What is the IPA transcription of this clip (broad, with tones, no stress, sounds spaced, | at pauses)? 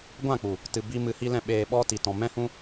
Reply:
ɡʷ ã˦˨ k͡p u˨ | t ɨ˨ b i˧ m ɨ˧ h i˦ l ɛ̃˦ ɓ eː˧ ɓ ɔ˧ t i˨ t ɔ̃˨ m ɛ̃˦ h ũ˦